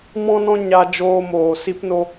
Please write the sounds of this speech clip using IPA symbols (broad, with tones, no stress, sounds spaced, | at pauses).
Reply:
m ɔ̃˧ n ɔ̃˧ ɲ a˧ d͡ʒ oː˧ m oː˨ s i˧ p n o˧